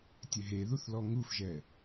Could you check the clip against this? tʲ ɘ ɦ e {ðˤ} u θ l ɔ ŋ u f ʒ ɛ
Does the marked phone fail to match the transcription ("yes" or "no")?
yes